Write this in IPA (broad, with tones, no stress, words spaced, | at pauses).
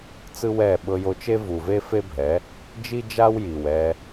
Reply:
t͡sɯ˦wɛ˦˨ ɓɤ˧jo˧t͡ʃe˦ vu˨ve˦fe˦bʱɛ˨˦ | d͡ʒi˦d͡ʒa˦wji˨w ɛ˧